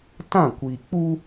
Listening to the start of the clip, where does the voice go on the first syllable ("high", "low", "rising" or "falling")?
falling